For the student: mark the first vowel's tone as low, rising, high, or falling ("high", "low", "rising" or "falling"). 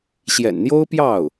low